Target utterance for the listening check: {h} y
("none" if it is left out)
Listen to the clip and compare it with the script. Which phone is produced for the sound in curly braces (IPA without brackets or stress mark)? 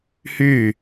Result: h